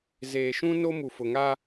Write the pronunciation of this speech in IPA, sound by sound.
z eː˨ ʃ ũ˦ n o˦ m u˨ f ʊ˨ ŋ a˦

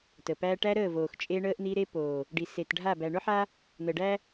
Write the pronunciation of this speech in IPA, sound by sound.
t ə˨ p æ˦ ʈ æ˦ ɾ əː˦˨ v oː˨ x t͡ʃʼ e˦ ɳ əː˦ ʔ n̪ i˦ ɾ e˦ p oː˨ | ɖ i˨ s e˨ t ɖʱ a˦˨ b æ˨ ɳ ʊ˦ ħ a˦ | n̪ ə˨ ɖ æ˦

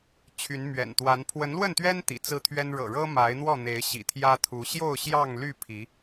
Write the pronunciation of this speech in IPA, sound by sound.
t͡ɕʰ y˨˦ n m ɥ ɛ̰˨˩ n t̪ w a˨˦ n pʰ w ə˨˦ n l w ə˥˨ n t̪ ɥ ɛ˦ n t̪ ḭ˨˩ t͡s ɹ̩˦ t̪ʰ ɥ ɛ˦ n ɻ ɤ̰˨˩ ɻ ɤ˦ m a˨˦ ɪ̯ n̪ w ɔ˥˨ n̪ e˨˦ ɪ̯ ɕ ḭ˨˩ t̪ʰ j ä˦ t̪ʰ u˨˦ ɕ j o˥˨ ʊ̯ ɕ j ɑ˥˨ ŋ l y˥˨ pʰ i˨˦

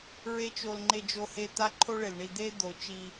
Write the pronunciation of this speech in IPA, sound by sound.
ɹ e˦ t͡ʃ o˧ l ŋ͡ǃ e˧ d͡ʒ o˧ h e˧ t̪ a˦ ǃʰ o˦ ɭ e˨ l ɳ i˦˨ d̪ e˦ d̪ o˨˦ t͡ʃ i˧

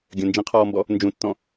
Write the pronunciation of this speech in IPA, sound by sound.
ɡʲ ə̃ n d͡ʒ ĩ qʰ ɔː m b ɔ | n d͡ʒ ũ tː ɔ̃

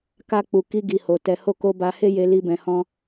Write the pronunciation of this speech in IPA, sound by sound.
k a˧ k͡p u˨ k i˧ ɡ i˨ h o˨ t ɛ˨ h o˧ k o˧ b a˧ h e˦ j e˧ l i˦ b ɛ̃˧ h ɔ̃˦

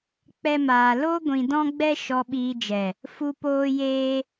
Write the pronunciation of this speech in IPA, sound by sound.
k͡p ɛ˦ m aː˧ l o˦ ɡʷ ĩ˧ d ɔ̃˦ ɡ͡b ɛ˦ ʃ ɔ˧ ɓ iː˧ d͡ʒ ɛ˨ | f u˦ p oː˦ j eː˦

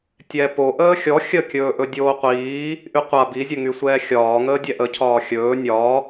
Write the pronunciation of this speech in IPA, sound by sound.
tʲ ɛ p o ʔ əː xʲ ɔ xʲ ə kʲ ɵː ʔ ɵ dʲ oː qʷ iː | ʔ y qʷ a b i zʲ ə ŋ y sʷ ɛː xʲ ɒː ŋ əː dʲ ɛ ʔ ə cʰ ɒː xʲ ɵː nʲ ɒ

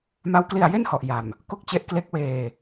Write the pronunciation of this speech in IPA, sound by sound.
m a˦˥ w k l i˧ a̯ j e˥˩ n h ɔ˨˩ ʔ j a˨˩ m | k o˥˩ k̚ t͡ɕ e˦˥ ʔ k l e˦˥ k̚ w eː˧

